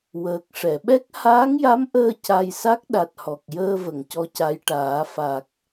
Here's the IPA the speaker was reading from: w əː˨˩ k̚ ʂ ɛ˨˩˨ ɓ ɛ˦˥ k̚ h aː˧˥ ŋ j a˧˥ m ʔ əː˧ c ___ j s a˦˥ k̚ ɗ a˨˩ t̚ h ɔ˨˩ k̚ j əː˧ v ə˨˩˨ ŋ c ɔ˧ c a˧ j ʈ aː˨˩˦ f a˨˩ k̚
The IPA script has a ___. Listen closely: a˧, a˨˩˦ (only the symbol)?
a˧